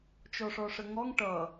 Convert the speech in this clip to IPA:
t͡ʃ ɔ ʂ ɔ ʂ ə ŋ ɔ ŋ ʈ ʌ

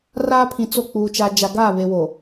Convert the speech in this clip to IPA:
r aː˦ pʰ ĩ˨ t͡s o˦˨ k͡p uː˨ t͡ʃ a˨ d͡ʒ a˨ ɡ a˦˨ β e˨ w o˨

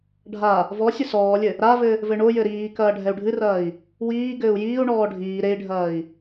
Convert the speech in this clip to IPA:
ɖʱ a | v ɔ sʲ ɘ s ɔː lʲ ɘ | ɾ a v ɘ | v ɘ ɳ o j ɘ ɾ iː k ɐː ɖʱ ɛ u̯ ɖʱ ɨ r ɐː i̯ | w iː ɡ ɘː u̯ j iː u̯ ɳ ɔː ɖʱ iː ɾ e i̯ ɖʱ ɐː i̯

